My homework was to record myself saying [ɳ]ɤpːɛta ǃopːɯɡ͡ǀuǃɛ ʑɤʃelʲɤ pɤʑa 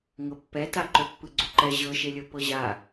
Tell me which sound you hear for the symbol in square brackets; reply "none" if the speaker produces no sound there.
ŋ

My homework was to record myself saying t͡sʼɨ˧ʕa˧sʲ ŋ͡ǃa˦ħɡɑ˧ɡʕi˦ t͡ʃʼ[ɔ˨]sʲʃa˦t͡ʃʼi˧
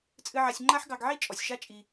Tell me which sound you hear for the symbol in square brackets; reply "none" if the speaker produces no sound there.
ɔ˨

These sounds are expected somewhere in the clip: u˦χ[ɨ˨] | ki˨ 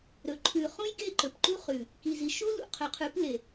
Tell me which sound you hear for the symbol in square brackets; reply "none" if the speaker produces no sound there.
ʉ˨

